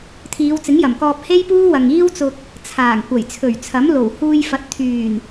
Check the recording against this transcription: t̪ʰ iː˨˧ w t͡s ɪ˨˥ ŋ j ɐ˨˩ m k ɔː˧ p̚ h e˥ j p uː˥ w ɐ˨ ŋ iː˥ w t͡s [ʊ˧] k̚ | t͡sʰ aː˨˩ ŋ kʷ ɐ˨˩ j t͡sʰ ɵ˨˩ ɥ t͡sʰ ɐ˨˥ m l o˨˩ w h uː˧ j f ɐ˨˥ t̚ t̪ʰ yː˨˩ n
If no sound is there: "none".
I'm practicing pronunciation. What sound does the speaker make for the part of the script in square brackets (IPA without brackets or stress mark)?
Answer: ʊ˧